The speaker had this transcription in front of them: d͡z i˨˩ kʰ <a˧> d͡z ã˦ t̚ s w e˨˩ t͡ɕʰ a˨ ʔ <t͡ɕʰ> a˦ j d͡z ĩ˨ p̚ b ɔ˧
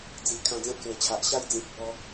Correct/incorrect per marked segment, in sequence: incorrect: ã˧, incorrect: ɕ

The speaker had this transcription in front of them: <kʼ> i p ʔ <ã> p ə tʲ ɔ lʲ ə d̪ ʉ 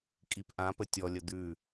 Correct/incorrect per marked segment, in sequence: correct, correct

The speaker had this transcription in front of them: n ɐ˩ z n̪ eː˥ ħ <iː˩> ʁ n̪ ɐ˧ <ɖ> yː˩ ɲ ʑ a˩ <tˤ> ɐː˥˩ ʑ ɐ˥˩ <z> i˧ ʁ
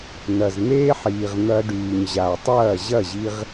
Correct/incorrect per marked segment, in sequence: correct, correct, correct, incorrect: ʑ

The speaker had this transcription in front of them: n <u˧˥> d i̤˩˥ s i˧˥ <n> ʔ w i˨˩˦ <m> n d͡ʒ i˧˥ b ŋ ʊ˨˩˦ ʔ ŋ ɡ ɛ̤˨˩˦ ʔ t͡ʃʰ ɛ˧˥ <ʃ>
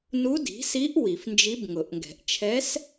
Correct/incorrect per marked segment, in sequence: correct, incorrect: none, incorrect: f, incorrect: s

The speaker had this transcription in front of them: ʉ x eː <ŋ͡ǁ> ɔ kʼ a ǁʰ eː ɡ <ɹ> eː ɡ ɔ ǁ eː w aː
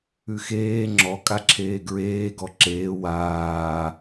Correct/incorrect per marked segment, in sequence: correct, correct

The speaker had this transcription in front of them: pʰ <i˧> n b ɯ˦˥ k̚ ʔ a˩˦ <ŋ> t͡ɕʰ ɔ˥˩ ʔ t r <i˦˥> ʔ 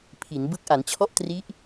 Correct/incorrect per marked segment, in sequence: incorrect: i˩˦, incorrect: n, correct

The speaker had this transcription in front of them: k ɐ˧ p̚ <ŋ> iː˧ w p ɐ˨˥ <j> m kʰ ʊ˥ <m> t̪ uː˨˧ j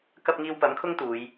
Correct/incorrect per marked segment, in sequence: correct, incorrect: none, incorrect: ŋ

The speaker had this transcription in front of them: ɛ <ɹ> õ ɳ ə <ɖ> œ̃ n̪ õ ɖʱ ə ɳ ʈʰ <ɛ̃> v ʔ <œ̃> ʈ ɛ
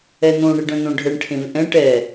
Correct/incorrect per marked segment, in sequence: incorrect: n̪, correct, incorrect: ẽ, incorrect: ɛ̃

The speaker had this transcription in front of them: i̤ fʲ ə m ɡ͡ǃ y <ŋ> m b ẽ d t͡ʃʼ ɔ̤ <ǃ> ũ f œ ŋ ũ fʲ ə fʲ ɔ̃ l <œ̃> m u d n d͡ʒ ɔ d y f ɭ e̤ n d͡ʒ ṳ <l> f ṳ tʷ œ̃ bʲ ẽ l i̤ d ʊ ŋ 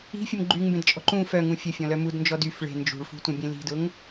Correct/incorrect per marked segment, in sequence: correct, correct, incorrect: œ, incorrect: ɭ

